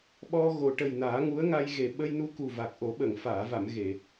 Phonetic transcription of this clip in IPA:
ɓɔ˧ ɣo˨˩ ʈə˨˩j naː˨˩˦ŋu˧˥ə̯ŋa˧jɣe˨˩ ɓə˧jnu˧ ku˨˩va˨˩k̚ʔo˨˩˦ ɓə˨˩˨ŋfaː˨˩˨va˨˩˨m ɣe˨˩˨

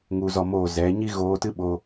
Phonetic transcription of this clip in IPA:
ŋu˧zɔ˧moː˦˨ zɛ˨˦ ɲi˦ɣoː˧tɨ˦ɓoː˧

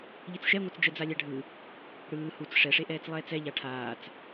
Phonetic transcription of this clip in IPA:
ʎit͡sʃɛŋʷat͡s d͡ʒɛd͡zalʲaɖʱɯ | ɽɯː hut͡s ʂɛʂeʔɛːt͡s lˠɛːt͡sɛ ʎaʈʰaːt͡s

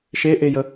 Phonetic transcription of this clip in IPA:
ʃeʔejə

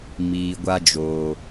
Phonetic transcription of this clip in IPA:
miː˨ɡʷa˧ d͡ʒoː˨

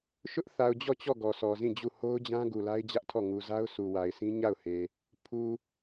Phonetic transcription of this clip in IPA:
ʃʊ˦ʔθa˨ʊ̯d͡ʑɔ˦˨t͡ɕɔ˦˨ ɡɔ˨sɔ˨zĩ˦˨d͡ʑu˦˨ ho˦ʊ̯d͡ʑã˦ ɡu˨la˦ɪ̯d͡ʑä˦ʔtʰɔ˦˨ ŋu˨za˦ʊ̯ sʰu˨wa˨ɪ̯sʰĩ˦ ɲa˦˨ʊ̯he˨ | pʰu˨

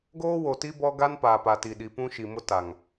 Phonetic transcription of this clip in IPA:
ɡoː˦wo˨ti˦ bɔ˦ɡa˦n paː˨pa˨ti˨ ɗi˨pũ˦ ʃi˨mʊ˦ta˨ŋ

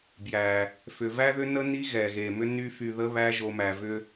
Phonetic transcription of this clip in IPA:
bjæ˨ | fʏ˨væ˦ðʏ˦nə˦ ni˦ɣɛ˨ɣe˨mʏ˦ ny˦fy˧ ðə˦βæ˦ʒo˧ mæ˨vʏ˧

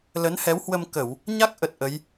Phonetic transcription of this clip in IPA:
lə˨˦nhɛ˨˦whwə˧m kə˧˩˨w | ɲa˦˥k̚ʔə˨˩t̚ ʔə˨˦j

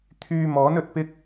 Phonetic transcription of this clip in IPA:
t̪ʰyː˧mɔː˨˥n ɵ˧t̚pɪ˥k̚

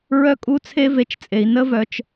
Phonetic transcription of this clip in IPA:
ɹœ˦kʼu˦ t͡sʰe˦ve˨t͡ʃt͡sʼe˩i̯ nə˥vœ˨t͡ʃ

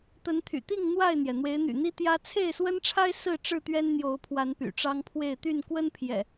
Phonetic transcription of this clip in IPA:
t̪ə˨˦nt̪ʰy̰˨˩t̪i˥˨ŋ n̪wa˥˨ɪ̯n̪jɛ˩ n̪we˨˦ɪ̯n̪y̰˨˩n̪i˦ t̪jä˦ t͡sʰe˥˨ɪ̯swə˦nʈ͡ʂʰa˦ɪ̯ sɹ̩˥˨ ʈ͡ʂɻ̩˥˨t̪ɥɛ˦nn̪jo˨˦ʊ̯pʰwa˨˦n py̰˨˩ʈ͡ʂɑ˦ŋpʰwe˥˨ɪ̯ t̪y˥˨nkwə˦npʰjɛ̰˨˩

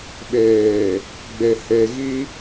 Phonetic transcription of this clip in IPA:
ɓeː˨ | ɡ͡be˨ he˨ ɣi˦

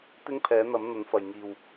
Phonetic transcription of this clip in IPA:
t̪ɪ˥ŋpʰɛː˨˥n̪ɐ˨˥m n̪ɐ˨˥nfɐ˨jŋiː˨w

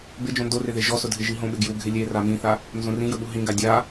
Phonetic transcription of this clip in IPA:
bɪ d͡ʒõndorɪ ðeʒɔsʊ dʱɪʒiɦõɓɪ ɡjuɡʱɪ lʲe ramĩθa | nzõrĩjʊ ɓuɦĩɡa dʲa

